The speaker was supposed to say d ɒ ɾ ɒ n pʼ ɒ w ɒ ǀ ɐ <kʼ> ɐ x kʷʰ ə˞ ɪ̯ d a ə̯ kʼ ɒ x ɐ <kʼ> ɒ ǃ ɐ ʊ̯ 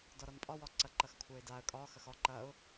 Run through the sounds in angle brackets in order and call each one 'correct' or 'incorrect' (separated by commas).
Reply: incorrect, incorrect